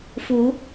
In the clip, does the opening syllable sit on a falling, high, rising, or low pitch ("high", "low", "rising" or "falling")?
rising